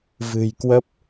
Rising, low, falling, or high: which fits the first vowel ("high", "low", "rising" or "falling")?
low